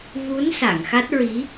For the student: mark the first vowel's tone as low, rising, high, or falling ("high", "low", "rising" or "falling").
rising